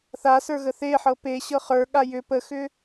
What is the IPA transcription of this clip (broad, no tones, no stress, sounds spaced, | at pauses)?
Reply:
θ a s ə˞ ɣ ə θ e ħ ɤ p e ɕ ɤ χ ə˞ ɠ a j ʏ p ə x ʏ